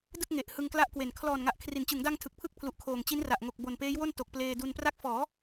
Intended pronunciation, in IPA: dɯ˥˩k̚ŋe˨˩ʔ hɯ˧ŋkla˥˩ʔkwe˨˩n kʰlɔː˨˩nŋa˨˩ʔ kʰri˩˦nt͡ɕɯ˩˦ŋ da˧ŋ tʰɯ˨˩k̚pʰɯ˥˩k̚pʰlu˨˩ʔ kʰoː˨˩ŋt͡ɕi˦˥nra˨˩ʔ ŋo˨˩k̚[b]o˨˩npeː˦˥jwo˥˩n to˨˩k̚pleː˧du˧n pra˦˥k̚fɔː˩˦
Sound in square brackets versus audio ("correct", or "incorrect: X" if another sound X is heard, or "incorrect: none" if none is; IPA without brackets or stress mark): correct